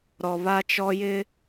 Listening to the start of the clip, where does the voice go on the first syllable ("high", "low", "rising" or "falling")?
low